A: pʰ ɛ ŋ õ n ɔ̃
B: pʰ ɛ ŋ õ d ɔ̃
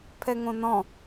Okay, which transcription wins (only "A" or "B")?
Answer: A